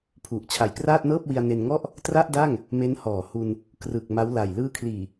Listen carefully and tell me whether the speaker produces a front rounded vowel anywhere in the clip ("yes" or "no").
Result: no